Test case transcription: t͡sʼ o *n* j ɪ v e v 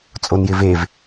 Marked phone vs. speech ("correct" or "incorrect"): correct